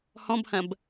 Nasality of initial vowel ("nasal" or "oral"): nasal